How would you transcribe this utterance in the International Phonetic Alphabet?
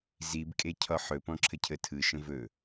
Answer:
z i b kʼ e cʰ ɒ ħ ɵ p ɔ̃ ǁʰ ə cʰ ə tʰ ɯ ʃ ə̃ v ɵ

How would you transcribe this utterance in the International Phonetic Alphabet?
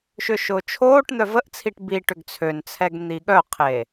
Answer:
ʃ ʏ ʃ ʊː t͡ʃʰ oː ʈ n̪ œ v ə ʔ t͡sʰ i ʈ b i ʈ ʏ ɡ t͡sʰ ø n t͡sʰ ɛ ɡ n̪ i ɠ œ qʰ eː

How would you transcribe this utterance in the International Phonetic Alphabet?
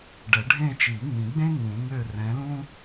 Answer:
ɖ ɛ˨˩˦ ɖʱ ẽ˦˨ t͡ʃ i˨˩˦ ŋ ĩ˨˩˦ ɡ͡b ẽ˥ ŋ ũ˨˩˦ ŋ ø˦˨ r ɛ̃˨˥ l ũ˥

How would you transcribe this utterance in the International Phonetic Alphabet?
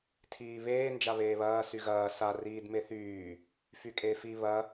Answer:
tʰ iː β eː n d͡ʒ a β eː β ɐː s y ɣ ɐː s a r iː d m e θ yː | f y kʼ eː f i β ɐ

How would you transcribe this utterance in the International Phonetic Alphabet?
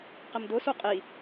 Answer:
q ɪ m d ʊ s u qʼ i

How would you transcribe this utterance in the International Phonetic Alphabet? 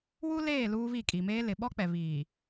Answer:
w u˦ l eː˦˨ l uː˦ β i˦˨ kʼ i˨ m eː˦ l ɪ˨ ɓ ɔ˦ k͡p ɛ˨ β iː˨

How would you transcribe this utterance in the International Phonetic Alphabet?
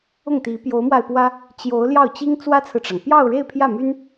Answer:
ʊ˥˩ ŋ t̪ i˧˥ p j o˧˥ ʊ̯ m w a˧ ɪ̯ p w ä˥ | t͡ɕ j o˧˥ ʊ̯ l j ɑ˥˩ ʊ̯ t͡ɕ i˥ ŋ t͡s w ä˥ t͡sʰ ɹ̩˨ ʈ͡ʂ ɑ˩ ŋ p j ɑ˥˧ ʊ̯ ɻ e˥˧ ɪ̯ pʰ j ä˥˩ m y˥ n

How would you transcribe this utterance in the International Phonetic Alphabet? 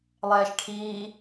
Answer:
lˠ ɛː ʃ ʈʰ iː

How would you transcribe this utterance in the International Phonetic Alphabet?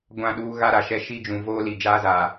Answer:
ɡʷ ã˦˨ ɗ uː˦ ɣ a˦ ɾ a˨ ʃ ɛ˦ ʃ i˦ d͡ʒ ũ˨ v oː˦ l i˨ d͡ʒ aː˦ z aː˨

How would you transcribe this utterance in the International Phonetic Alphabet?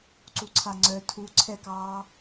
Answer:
ǀ u ǀʰ a ŋ͡ǀ œ tʰ u ǀʰ ɛ k ɑː

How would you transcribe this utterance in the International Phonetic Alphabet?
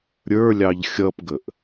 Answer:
ɾʲ ə˞ lʲ ɑ ʎ xʲ ʌ p ɡ ə ʔ

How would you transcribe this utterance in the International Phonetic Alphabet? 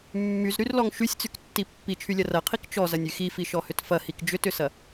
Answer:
mː y z ɾ y r l ɔ ŋ ʃ y sʲ t͡s y k tː i pː i t͡ʃʰ y lʲ ɐ r ɐ qʰ i k t͡ʃ ɔ z ɐ nʲ y x i f i ʃ ɔ h ʏ t f ɐ h i k d͡ʒ ʏ t ʏ s ɐ

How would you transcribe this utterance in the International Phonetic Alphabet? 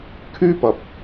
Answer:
kʰ yː˥ p ɐ˨ p̚

